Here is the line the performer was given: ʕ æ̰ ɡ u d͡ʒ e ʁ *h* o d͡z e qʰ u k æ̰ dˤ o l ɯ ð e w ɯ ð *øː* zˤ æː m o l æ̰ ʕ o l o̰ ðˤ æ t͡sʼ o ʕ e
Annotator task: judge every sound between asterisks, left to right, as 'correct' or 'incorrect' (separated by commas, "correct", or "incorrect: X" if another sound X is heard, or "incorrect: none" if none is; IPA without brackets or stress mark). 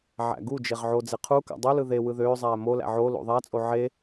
incorrect: ʕ, correct